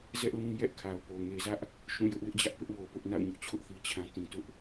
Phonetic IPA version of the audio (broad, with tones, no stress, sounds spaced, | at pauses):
z ɛ˦ ʔ l ũ˦ j ɛ˦ ʔ kʰ a˨ ʊ̯ p o˨ ŋ e˨ z ä˦ ʔ | ʃ ũ˦˨ j ʊ˦ ʔ w ɪ˦ ʔ d͡ʑ ä˦ ʔ p ɪ˦ ʔ w o˨ p ʊ˦ ʔ n a̰˦˨ ʊ̯ ɲ ʊ˦ ʔ t͡ɕʰ ʊ˦ ʔ θ i˦ t͡ɕʰ ã˦ t ĩ˨ t ʊ˦ ʔ